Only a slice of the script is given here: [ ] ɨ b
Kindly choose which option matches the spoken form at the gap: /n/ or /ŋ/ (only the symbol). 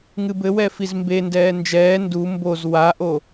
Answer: ŋ